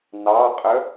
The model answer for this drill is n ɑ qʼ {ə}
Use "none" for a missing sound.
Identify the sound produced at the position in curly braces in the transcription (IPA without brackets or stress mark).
ə